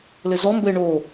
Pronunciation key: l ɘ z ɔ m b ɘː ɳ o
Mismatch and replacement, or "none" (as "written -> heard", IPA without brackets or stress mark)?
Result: none